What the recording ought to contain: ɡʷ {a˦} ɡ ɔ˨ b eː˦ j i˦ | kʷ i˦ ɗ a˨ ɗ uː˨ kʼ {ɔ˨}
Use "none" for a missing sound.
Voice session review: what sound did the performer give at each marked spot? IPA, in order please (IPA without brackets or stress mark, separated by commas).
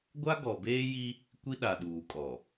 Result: a˦, ɔ˨